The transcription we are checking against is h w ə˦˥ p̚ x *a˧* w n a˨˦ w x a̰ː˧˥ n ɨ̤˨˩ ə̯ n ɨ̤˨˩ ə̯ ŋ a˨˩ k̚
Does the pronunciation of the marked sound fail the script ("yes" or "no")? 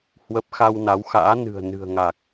no